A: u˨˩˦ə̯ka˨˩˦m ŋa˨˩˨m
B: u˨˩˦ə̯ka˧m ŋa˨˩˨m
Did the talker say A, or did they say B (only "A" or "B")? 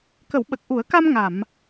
B